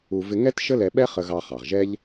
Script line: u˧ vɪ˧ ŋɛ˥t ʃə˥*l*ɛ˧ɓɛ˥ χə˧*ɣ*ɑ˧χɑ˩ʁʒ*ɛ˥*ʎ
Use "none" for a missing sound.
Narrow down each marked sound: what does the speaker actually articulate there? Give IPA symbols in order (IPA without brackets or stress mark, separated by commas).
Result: l, ɣ, ɛ˥